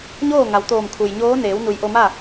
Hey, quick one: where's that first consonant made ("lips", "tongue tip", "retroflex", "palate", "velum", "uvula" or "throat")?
palate